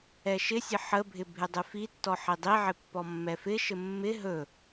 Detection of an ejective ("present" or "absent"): absent